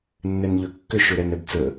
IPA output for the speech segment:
nː ɛ n ʎ ɵ kː ʏ ʃ ɵ ɾ ɛ n ɛ b t͡s ə

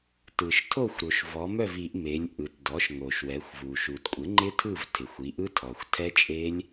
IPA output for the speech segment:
t ɯ˩ ʃ tʰ o˦˨ xʷ ɾ o˩ ʃ v ɔ˩˧ m œ˦˨ v i˩˧ ʔ m e˩˧ lʲ ʔ ɯ˩ t d ɔ˩˥ ʃ ŋ o˩ ʃ w ɛ˩˧ xʷ v u˩ ʃ u˩ t kʷʼ ɪ˩˥ ŋ͡ǃ ɪ˦˥ tʰ ɯ˦˨ v tʰ ɪ˩ xʷ i˩˧ ʔ ɯ˦˥ tʰ ɔ˩ xʷ tʰ ɛ˦˥ t͡ʃʼ e˦˥ lʲ

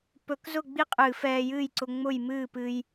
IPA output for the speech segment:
p ɵ˧˩˧ k z ʊ˥˩ ɡ͡b i˥˩ qʼ ɨː˧˩˧ f ɛː˧ j ɨː˥˩ j ǀ ʊ˧ ŋ͡m ʊ˥˩ j m ɨː˥˩ p ɨː˧ j

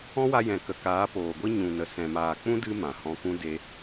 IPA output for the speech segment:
ɔ̃˦ w a˧ j ɛ̃˨ k ə˨ k aː˨˦ p oː˨ ɡʷ i˦ ɲ ũ˨ n ə˨ s ɛ̃˨ m aː˨ k͡p ũ˦ d ɨ˦ m ã˨ h ɔ̃˧ k ũ˦ d e˧

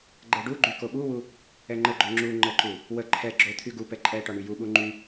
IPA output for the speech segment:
ɡ͡ǃ ɛ ɖ u ɡ͡ǃ y k o ɓ u w u | ɛ ŋ͡ǃ ə ɡ͡ǃ o ŋ͡ǁ u ŋ͡ǃ ə ǃ u | w ə ǃʰ ɛ ɡ͡ǁ o t̪ʰ y ɡ u p ɛ ǃʼ ɛ ʈ ɒ ɳ y j u ɓ u ŋ͡ǃ y

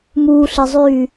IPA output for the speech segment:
m uː ɬ ɪ zˤ yː

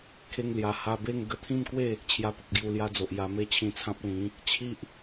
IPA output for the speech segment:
kʰ e˧ ŋ l j a˨˩ h a˧ b e˥˧ ŋ ɡ ə˧ t̪ʰ ĩ˥˧ m k w e˥˧ | t͡ɕʰ j a˦ p ə˨ p̚ ɡ j u˧ l j a˦ d͡z o˨ ʔ j a˨˩ m e˥˧ t͡ɕʰ ĩ˧ t͡sʰ ã˦ p̚ l ĩ˨˦ | t͡ɕʰ i˦ ʔ

